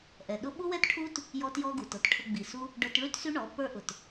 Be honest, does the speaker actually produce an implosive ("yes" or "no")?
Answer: yes